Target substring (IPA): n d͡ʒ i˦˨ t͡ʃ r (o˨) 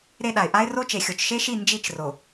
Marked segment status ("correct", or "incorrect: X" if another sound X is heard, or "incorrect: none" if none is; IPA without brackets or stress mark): correct